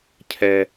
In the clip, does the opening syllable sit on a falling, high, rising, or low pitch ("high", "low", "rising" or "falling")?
low